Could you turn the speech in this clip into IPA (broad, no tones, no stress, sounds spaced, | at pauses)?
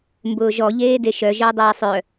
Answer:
m b ʊː ʒ ɔ ʎ eː d e ʃ œ ʒ əː dˤ eː sˤ œ